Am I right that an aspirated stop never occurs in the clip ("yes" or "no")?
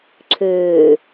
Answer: no